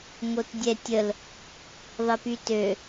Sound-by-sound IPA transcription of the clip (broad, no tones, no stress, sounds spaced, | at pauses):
ŋ o t dʲ ɛ tʲ ə l | ðˤ ə p y t ø